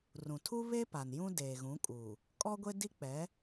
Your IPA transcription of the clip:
r ũ˨ tʰ u˦ β e˦ p a˨ n j ũ˦ d eː˨ ɣ ũ˨˦ kʼ u˨ | kʼ ɔ˦ ɡʷ e˦ d i˦ k͡p ɛ˨˦

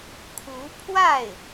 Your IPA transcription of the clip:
kʰ u˧˥ pʰ w a˥˩ ɪ̯

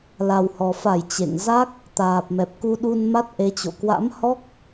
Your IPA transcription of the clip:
l a˨˩ w h ɔ˨˩ f a˧˩ j t͡ɕ ḛ˧˨ ŋ z a˦˥ k̚ | t̪ aː˨˩ p̚ m ɛ˨˩ p̚ k u˧ ɗ u˧ n m a˦˥ t̚ ʔ e˨˦ t͡ɕ o̰˧˨ k w a̰˧˥ m h ɔ˦˥ k̚

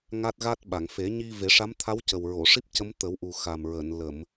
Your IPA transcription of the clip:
ŋ a˦˥ t̚ ɣ a˦˥ t̚ ɓ a˨˩˨ ŋ f e˨˩˦ ɲ i˧ v e˨˩˦ ʂ a˧˥ m t̪ʰ a˧˥ w c ə˨˩ w ɹ o˨˩˨ ʂ i˦˥ p̚ c ə˧˥ m t̪ ə˨˩˦ w ʔ u˨˩ x a˨˩ m ɹ əː˨˩˨ n l ə˨˩˨ m

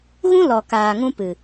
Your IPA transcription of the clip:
ɣ ũ˦ l ɔ˨ k aː˨ ŋ ũ˦ p ɨ˨

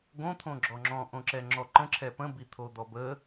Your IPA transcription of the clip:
ɡ õ t̪ʰ õ ɡ͡ǁ ɔ ŋ͡ǁ ɔ̃ ʔ õ ǁ ɛ ŋ͡ǁ ɔ ǃ ə̃ ǁʰ ɛ p ə̃ b i t̪ʰ o d̪ ɔ b ə

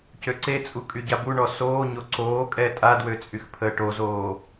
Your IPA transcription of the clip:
c ø ǀ e t͡sʼ u kʼ y ɟ a b u ɳ ɔ s oː ɲ o ǀ oː kʼ ɛ tʼ a d w ø t͡sʼ y x pʰ əː ʈ o z oː

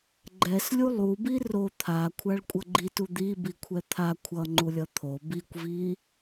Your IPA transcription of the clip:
ɡ͡ǃ ɛ s lʲ u lˠ u b i r o t̪ʰ a kʷʰ a ɭ kʷʼ ʌ ɡ͡ǃ i t u d̪ i b i kʷʰ ɛ t̪ʰ a kʷʰ ʌ ŋ͡ǃ u lʲ ʌ t̪ʰ o b i kʷ v i

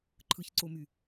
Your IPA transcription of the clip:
ǃʰ ɯ ç ǀ o m y

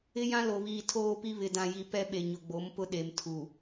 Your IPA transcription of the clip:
ɪ˦ j ã˦ l o˨ β iː˨ tʰ oː˦ p i˦ β ɪ˨ d ã˨ j i˨ p ɛ˦ ɓ e˨ ɲ ʊ˨ ɡ͡b o˨˦ m p ʊ˦ ɗ e˨ m tʰ u˨

